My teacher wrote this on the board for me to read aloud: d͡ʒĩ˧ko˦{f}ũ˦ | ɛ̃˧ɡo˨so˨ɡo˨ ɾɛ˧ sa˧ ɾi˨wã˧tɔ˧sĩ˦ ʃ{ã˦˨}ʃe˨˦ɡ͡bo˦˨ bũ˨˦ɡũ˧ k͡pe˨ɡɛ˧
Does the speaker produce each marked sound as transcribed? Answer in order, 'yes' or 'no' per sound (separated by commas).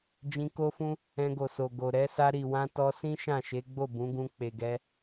yes, yes